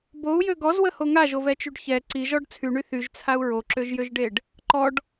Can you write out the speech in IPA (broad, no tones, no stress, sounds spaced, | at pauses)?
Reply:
b o u̯ j ø ɡ ɔ z w ə h o ŋ a ʒ o v ɛ t͡ʃ y ɖ ç ɛ ǀ i ʒ ɔ ɖ t͡sʰ y ɳ y θ y ʒ t͡sʰ a u̯ ɹ o ǁ ø ʒ j ø ʒ ɖ e ɖ | ǃ ɔ ɖ